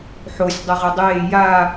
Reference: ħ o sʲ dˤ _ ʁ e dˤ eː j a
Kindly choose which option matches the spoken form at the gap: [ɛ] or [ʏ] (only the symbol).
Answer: ɛ